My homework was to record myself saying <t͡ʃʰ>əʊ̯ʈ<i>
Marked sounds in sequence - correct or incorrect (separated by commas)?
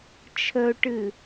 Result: correct, incorrect